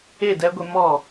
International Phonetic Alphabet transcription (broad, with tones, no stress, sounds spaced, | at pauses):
e˦˨ d ɛ˦ ɡʷ e˦ m ɔ˦˨